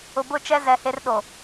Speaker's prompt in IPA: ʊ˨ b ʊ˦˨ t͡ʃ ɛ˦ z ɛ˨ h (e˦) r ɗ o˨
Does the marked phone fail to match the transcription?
no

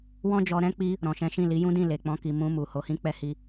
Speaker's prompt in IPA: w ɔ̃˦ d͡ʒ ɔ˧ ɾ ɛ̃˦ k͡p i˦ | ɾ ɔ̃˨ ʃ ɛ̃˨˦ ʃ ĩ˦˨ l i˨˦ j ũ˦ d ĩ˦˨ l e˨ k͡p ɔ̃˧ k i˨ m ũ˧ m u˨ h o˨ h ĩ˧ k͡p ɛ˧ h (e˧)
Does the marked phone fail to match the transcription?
yes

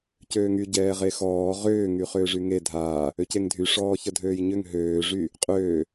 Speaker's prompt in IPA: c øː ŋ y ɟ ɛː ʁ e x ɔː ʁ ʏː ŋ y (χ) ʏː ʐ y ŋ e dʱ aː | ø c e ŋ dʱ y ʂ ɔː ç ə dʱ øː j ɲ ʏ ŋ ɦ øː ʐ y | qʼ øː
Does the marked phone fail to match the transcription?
no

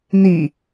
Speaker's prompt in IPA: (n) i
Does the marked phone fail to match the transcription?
no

